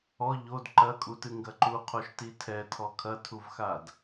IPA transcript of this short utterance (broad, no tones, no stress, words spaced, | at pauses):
ɔ ʎod ǃɐkʼutɨ ŋɡɐǃuqʰoʃ titʰɛtʰɔ kʰɐtʰuvxad